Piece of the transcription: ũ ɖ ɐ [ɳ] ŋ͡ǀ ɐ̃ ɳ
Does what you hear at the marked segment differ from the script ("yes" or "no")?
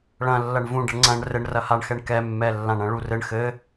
no